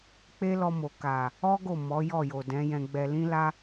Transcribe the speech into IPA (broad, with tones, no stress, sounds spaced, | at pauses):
k͡p e˦ l ɔ˧ m o˨ k a˨ | ɔ˦ ɡ o˦˨ m ɔ˨˦ j ɔ˦˨ j o˨ d ɛ̃˨˦ j ɛ̃˧ ɡ͡b ɛ˧ l ĩ˦ l a˦